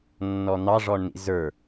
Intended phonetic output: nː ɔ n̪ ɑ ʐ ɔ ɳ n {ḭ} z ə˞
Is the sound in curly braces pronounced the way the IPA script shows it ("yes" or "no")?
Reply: yes